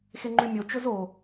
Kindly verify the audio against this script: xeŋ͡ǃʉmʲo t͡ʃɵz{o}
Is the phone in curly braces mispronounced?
no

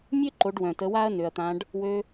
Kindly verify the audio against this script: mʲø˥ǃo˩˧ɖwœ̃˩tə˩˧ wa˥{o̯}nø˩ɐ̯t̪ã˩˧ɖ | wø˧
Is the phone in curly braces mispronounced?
yes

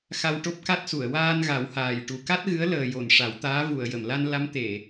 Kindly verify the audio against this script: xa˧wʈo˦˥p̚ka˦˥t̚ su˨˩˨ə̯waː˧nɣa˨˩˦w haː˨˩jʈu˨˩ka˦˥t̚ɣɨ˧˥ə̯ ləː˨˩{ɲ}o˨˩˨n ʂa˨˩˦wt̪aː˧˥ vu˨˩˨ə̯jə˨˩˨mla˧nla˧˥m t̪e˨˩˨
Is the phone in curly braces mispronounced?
yes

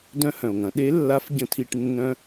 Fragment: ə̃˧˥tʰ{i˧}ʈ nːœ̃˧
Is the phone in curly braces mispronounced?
no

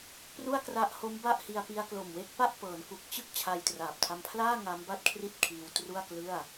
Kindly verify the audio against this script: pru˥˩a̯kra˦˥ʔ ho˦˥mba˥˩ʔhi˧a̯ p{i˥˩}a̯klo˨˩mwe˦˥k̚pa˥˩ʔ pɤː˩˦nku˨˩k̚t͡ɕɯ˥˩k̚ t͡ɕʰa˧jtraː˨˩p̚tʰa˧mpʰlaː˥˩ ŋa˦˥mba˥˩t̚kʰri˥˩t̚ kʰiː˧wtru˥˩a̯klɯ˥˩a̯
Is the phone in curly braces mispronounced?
yes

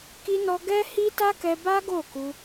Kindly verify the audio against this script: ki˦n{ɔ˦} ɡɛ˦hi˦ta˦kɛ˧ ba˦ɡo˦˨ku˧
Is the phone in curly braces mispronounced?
no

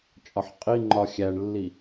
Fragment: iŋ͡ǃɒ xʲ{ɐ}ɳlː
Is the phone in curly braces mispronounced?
yes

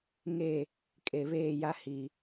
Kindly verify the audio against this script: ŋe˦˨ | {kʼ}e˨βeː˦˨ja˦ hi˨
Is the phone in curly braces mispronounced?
no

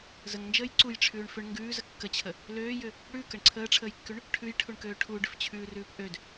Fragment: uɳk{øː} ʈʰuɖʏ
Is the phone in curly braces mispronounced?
no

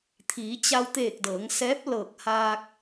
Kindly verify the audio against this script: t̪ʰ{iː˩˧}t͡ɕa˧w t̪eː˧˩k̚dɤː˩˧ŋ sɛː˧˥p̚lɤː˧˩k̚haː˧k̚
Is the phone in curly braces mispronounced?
no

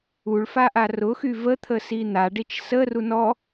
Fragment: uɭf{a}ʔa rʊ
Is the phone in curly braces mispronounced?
no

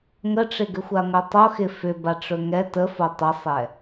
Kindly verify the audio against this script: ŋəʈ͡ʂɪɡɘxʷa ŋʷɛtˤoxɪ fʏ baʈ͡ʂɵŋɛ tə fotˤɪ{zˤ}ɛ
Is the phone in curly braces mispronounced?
yes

